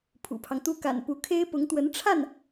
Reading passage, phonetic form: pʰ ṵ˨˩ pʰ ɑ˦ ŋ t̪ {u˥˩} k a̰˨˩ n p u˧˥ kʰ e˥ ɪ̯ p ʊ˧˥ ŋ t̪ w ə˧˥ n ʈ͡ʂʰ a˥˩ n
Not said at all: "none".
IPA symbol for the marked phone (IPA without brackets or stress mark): u˥˩